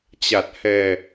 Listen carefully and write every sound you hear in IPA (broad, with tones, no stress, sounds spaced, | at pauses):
t͡ɕ a˨˩ t̚ h ɛ˨˩